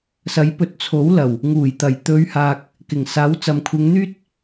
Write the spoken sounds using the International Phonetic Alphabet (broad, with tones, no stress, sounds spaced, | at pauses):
s ɐ˨˥ j p ɵ˨˥ t̚ t͡sʰ o˨˥ w l ɐ˨˩ w | ŋ uː˨˩ j t̪ ɐ˨˩ j t̪ ɵ˨˧ ɥ h aː˨ k̚ | k ɪ˨˩ ŋ s aː˨˥ w t͡s ɐ˨ m kʷʰ ɪ˨˧ ŋ n̪ yː˥ t̚